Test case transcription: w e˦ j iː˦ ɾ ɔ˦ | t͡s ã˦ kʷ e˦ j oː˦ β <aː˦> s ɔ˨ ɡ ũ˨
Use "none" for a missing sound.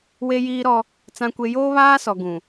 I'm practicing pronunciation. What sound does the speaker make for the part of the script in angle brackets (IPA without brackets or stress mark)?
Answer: aː˦